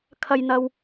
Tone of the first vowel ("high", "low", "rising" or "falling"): high